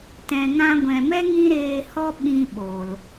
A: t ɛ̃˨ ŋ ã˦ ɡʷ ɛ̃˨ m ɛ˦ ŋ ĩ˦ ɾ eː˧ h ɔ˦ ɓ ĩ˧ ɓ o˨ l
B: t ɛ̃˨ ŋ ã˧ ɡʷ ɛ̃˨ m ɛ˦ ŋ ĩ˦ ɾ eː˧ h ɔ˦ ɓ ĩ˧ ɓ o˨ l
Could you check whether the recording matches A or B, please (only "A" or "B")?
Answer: B